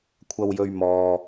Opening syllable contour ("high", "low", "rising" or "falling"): low